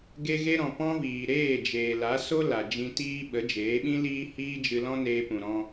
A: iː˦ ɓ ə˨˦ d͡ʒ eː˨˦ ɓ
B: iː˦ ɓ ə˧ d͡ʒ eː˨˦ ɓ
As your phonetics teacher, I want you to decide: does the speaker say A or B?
A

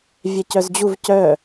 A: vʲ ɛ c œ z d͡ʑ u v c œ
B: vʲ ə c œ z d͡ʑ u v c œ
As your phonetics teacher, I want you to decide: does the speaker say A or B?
A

